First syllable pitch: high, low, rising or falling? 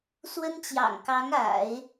high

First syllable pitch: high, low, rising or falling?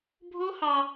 high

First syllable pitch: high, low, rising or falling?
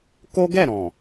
high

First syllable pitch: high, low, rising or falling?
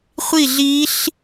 falling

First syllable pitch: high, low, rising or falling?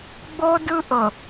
high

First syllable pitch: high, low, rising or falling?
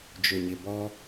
low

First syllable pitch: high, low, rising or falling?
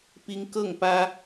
high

